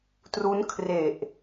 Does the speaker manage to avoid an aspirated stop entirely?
no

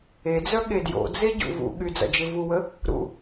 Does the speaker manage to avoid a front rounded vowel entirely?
no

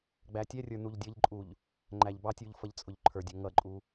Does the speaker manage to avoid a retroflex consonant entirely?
yes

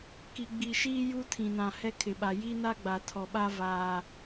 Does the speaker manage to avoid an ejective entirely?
yes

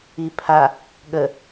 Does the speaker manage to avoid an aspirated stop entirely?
no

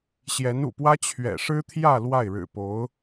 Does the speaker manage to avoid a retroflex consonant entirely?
no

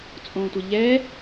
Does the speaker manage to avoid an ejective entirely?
no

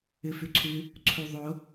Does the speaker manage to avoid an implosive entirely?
yes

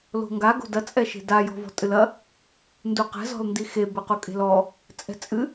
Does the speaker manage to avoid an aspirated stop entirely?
yes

